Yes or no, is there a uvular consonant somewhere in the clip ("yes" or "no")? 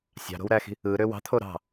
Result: no